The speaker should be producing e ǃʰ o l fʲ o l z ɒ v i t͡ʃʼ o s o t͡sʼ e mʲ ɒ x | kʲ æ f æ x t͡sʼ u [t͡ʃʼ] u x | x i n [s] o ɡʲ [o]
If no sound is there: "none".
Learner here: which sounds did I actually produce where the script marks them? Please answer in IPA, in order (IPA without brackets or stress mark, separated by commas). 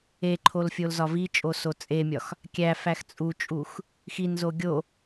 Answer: t͡ʃʼ, z, o